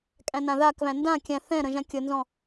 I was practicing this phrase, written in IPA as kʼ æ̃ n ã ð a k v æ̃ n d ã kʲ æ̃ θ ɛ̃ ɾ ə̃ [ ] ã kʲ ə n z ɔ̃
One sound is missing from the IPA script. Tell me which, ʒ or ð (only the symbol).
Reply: ʒ